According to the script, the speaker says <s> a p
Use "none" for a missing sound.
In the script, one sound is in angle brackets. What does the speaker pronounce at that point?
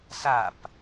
s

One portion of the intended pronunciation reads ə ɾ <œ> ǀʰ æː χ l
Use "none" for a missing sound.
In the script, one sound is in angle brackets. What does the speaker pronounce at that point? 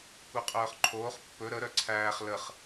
œ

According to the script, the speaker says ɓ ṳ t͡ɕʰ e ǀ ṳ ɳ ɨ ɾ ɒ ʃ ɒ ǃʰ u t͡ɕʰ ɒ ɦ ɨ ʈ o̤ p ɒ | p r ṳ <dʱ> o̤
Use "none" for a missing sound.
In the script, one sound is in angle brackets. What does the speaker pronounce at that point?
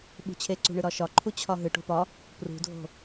dʱ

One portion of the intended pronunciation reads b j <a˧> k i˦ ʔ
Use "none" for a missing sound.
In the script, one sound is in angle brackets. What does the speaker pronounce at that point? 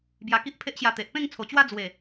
a˧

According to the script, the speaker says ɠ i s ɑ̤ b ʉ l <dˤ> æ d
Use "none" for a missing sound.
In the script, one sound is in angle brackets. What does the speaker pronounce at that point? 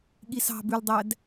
dˤ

